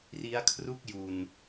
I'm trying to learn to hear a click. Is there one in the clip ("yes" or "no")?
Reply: no